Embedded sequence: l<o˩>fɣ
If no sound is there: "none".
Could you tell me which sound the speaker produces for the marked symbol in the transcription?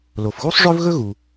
o˩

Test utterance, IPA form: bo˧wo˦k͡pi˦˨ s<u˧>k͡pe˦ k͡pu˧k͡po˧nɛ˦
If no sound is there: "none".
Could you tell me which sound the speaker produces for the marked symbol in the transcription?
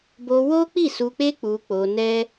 u˧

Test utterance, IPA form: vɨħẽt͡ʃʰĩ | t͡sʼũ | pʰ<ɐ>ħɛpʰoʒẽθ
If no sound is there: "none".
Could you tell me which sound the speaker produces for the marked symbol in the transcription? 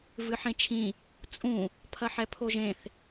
ɐ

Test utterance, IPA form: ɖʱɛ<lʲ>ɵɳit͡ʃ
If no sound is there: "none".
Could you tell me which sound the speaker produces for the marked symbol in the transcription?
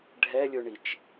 lʲ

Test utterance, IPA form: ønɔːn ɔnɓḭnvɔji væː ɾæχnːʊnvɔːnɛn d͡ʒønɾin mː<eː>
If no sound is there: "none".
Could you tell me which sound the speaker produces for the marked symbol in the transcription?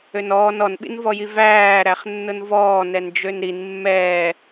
ɛː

